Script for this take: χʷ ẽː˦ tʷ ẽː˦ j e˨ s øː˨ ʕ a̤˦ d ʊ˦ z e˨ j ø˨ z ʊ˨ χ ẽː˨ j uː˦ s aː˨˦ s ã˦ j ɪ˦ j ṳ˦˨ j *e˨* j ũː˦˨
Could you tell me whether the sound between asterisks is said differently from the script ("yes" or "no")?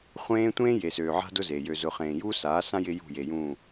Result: no